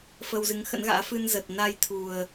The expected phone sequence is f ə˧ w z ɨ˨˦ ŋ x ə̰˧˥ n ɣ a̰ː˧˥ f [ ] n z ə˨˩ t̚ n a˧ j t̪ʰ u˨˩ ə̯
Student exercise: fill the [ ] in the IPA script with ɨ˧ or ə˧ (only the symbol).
ɨ˧